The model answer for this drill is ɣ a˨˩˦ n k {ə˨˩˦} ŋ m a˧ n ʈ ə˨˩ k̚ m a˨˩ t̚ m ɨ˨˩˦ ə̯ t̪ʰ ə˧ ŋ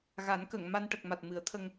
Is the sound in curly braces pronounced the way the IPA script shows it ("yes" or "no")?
no